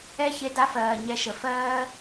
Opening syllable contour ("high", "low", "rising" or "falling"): high